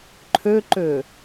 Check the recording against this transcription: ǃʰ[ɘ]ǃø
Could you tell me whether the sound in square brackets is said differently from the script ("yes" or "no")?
yes